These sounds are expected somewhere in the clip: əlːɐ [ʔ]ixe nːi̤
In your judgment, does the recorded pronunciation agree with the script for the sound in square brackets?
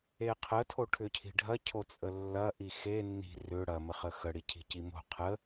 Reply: yes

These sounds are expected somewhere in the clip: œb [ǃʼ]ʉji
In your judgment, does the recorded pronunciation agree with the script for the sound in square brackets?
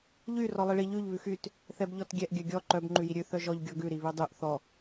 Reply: no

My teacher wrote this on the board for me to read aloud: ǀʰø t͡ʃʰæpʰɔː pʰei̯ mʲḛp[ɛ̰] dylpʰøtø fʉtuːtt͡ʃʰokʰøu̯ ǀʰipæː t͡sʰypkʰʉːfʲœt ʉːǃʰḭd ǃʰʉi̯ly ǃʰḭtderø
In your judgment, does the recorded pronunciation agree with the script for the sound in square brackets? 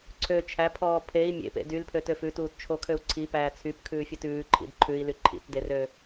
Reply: no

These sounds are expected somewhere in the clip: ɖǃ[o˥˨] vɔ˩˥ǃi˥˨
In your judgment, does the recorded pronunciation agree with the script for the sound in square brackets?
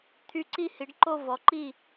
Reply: yes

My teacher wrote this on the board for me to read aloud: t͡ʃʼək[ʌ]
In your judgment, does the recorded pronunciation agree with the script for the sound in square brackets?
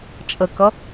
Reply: yes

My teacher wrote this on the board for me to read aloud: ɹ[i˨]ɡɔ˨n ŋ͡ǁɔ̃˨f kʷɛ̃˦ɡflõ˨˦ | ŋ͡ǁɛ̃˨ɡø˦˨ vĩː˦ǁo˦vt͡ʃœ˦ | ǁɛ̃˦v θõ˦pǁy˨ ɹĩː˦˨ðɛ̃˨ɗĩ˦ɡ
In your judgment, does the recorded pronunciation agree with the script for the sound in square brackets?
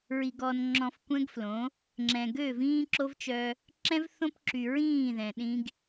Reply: yes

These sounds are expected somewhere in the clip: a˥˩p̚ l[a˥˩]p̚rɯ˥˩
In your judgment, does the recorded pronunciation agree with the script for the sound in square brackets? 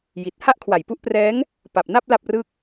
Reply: yes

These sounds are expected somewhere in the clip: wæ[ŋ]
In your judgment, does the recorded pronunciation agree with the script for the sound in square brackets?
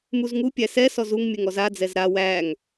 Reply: yes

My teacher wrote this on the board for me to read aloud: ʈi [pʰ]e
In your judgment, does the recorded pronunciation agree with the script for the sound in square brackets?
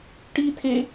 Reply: no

